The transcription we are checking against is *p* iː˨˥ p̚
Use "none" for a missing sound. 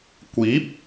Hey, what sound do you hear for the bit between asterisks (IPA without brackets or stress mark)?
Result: kʷ